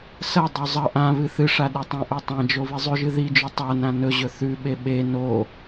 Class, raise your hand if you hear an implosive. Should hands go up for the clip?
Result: yes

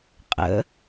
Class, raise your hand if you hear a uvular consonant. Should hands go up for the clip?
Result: yes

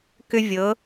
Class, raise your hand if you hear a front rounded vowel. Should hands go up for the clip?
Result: yes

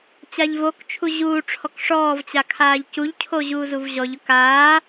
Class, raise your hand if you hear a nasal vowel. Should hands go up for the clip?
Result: no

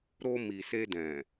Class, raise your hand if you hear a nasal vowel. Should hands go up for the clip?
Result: yes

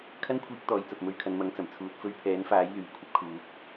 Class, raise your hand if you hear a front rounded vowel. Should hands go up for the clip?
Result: yes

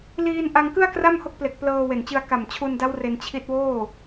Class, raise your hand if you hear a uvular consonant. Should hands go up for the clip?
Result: no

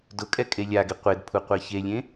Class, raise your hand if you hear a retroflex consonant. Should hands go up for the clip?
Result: no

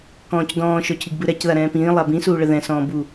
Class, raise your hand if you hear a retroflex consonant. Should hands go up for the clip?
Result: yes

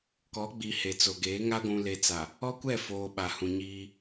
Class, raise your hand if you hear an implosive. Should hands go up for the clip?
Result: yes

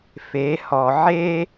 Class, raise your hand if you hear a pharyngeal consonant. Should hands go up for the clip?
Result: yes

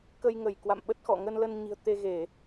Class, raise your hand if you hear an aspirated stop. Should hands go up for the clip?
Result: no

